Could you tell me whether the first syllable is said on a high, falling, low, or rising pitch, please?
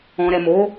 low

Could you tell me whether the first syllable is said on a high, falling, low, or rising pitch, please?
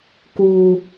high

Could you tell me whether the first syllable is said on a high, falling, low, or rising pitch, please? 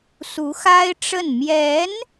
rising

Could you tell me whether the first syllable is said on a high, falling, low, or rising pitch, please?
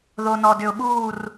low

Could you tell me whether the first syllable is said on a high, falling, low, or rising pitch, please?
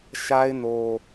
high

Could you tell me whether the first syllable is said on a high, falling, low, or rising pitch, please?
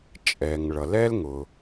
low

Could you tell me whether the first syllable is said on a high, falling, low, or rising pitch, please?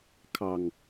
low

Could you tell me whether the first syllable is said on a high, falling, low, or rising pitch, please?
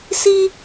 high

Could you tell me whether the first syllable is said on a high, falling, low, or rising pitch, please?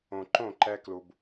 low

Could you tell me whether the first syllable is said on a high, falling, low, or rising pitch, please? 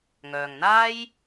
low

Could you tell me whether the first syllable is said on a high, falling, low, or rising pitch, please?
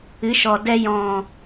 rising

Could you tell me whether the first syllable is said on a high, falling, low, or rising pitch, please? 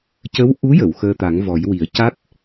rising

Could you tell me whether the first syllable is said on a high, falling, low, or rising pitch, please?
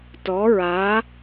rising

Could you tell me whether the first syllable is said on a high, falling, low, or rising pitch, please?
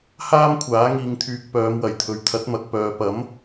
high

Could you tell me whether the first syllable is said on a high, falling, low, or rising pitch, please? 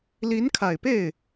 rising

